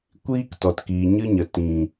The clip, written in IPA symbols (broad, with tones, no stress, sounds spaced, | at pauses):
kʷ iː˦ k t ɔ˨ t k iː˨ ɲ ɨ˦ ɲ ə˨ t ĩ˨